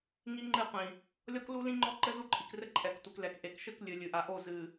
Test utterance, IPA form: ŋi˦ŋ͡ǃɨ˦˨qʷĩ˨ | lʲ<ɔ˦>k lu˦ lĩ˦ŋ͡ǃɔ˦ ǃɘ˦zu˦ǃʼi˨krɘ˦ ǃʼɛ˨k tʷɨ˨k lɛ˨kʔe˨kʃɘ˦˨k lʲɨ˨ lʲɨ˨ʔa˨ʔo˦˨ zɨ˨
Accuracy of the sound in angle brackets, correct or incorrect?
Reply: correct